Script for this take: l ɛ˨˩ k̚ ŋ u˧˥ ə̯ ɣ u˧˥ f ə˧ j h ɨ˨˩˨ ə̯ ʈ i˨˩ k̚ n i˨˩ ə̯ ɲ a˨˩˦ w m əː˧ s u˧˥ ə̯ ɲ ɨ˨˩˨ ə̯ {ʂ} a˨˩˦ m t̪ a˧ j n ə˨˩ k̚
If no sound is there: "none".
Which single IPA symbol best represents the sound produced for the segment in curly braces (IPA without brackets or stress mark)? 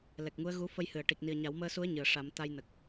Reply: ʂ